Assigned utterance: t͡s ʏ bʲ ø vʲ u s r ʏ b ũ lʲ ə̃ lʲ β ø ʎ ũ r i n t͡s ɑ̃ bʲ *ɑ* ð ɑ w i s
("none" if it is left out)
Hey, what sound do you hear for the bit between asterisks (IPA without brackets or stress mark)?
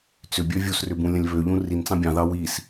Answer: ɑ̃